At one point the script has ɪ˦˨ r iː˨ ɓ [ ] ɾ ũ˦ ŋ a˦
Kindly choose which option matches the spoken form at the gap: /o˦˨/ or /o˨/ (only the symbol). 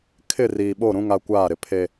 o˦˨